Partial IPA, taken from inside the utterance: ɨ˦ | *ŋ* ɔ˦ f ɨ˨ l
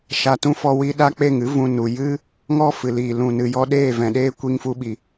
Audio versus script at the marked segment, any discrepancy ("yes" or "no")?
no